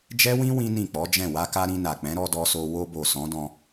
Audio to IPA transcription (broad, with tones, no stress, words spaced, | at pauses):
d͡ʒɛ˦wĩ˦ wĩ˦nĩ˦˨k͡pɔ˨˦d͡ʒɛ̃˦˨ wa˧ka˧ ɾĩ˧na˨k͡pɛ̃˨˦ ɾɔ˧dɔ˧so˧ wo˧bo˨ sɔ̃˨˦dɔ̃˧